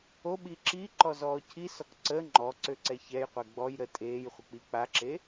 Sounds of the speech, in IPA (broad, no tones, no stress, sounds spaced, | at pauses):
o ɓ i ǁ i ǃ ɔ z ɔː cʰ i s ɔ k ǀ ə ŋ͡ǃ ɔ ǀ ø ǀ ɛ ç ɛ j qʷ ɛ ɡ͡b ɔ j ɾ ə tʼ eː j χʷ ə k͡p i k͡p a ǁ e